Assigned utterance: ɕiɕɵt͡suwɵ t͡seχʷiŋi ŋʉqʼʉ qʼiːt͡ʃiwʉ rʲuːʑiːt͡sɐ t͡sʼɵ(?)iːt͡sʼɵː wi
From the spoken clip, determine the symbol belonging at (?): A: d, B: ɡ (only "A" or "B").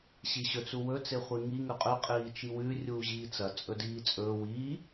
A